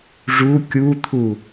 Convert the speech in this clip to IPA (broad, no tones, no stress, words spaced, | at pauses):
ʐu kʲut̪ʰu